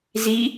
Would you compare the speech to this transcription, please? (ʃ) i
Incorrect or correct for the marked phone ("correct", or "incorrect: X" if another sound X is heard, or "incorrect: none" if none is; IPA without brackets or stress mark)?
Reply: incorrect: z